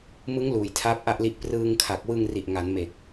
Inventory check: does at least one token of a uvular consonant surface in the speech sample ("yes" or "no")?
no